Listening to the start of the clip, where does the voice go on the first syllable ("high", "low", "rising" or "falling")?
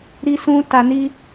high